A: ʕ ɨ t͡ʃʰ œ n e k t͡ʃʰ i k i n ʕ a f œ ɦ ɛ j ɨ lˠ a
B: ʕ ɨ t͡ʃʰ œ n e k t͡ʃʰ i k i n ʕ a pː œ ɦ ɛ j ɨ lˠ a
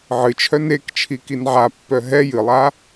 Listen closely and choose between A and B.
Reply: B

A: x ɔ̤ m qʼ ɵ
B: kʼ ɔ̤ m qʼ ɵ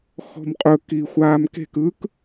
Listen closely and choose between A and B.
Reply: A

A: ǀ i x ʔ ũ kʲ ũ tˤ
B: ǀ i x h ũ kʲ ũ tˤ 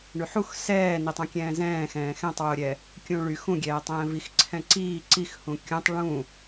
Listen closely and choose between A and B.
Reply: B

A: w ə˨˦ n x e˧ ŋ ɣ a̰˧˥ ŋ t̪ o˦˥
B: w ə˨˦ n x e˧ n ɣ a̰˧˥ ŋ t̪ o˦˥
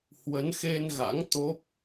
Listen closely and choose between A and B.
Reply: B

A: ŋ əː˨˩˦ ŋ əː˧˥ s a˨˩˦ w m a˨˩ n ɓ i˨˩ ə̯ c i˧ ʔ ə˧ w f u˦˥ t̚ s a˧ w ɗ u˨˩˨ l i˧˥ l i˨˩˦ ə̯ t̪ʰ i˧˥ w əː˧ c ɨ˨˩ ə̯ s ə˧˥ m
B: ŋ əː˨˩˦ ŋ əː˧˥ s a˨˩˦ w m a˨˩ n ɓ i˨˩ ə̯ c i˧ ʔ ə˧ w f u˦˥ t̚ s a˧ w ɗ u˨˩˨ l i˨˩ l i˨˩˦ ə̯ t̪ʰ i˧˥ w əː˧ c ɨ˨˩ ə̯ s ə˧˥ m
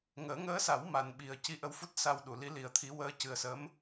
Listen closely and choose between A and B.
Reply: A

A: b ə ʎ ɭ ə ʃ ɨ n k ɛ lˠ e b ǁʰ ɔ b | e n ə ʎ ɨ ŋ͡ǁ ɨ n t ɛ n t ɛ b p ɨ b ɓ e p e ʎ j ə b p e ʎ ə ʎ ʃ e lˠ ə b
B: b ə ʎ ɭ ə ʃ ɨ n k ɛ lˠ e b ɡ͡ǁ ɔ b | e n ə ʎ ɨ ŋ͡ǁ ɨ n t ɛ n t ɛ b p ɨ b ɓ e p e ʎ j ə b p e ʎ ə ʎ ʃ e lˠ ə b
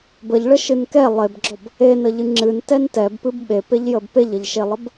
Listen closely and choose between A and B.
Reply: B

